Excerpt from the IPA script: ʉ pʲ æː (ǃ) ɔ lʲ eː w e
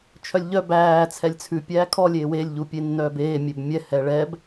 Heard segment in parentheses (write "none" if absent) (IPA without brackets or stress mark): kʰ